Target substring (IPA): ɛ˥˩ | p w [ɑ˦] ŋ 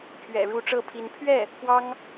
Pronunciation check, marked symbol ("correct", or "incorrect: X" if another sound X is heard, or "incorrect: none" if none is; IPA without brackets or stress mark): incorrect: ɑ˥